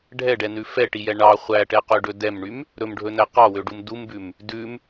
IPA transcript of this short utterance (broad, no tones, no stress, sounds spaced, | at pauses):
ɖʱ ɛ ɖ ɛ n ʉ f ɛ ʈ i j ɛ ɳ ɑ χʷ æ ʈ ɛ q ø ɖ ɵ d ɛ m ɳ y m | ɾ ɵ m ɖʱ ɵ n æ q ɑ w ø ɖ u m d u m b ʉ m | d ʉ m